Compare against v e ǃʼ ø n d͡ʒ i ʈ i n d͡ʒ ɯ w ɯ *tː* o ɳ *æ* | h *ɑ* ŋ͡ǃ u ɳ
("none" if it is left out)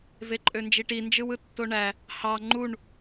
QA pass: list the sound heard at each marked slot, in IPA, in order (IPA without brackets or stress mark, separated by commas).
tː, æ, ɑ